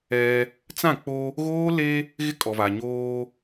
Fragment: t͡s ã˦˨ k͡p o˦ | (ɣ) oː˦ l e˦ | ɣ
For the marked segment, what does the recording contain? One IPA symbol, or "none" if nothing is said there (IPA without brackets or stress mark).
ɣ